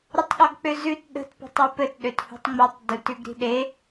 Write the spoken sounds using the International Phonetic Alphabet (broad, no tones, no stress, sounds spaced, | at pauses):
ɾ ə tˤ ɠ ɔ ɡ k͡p ø z ʉ t ɗ ə̤ t p ə̤ tˤ ʉ p ɘ t ɗ ø t h ṳ tˤ ŋ͡m i tˤ d u t ʉ ɡ ɾ i̤ ɗ e